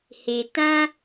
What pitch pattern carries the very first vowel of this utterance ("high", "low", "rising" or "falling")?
low